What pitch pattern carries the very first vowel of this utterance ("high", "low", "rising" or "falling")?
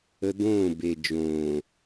high